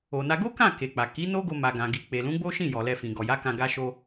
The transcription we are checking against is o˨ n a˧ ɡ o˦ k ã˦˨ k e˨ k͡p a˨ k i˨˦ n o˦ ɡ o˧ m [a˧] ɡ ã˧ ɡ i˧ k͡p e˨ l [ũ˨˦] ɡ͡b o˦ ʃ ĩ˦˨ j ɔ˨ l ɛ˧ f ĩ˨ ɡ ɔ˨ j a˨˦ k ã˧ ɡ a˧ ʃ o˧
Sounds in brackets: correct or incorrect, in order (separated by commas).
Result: correct, correct